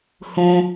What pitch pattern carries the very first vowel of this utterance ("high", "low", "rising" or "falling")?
low